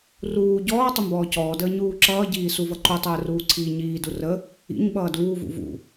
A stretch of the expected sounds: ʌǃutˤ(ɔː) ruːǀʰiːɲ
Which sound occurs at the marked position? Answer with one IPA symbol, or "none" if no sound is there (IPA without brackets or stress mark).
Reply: əː